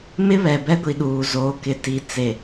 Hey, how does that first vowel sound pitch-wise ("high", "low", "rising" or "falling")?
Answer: high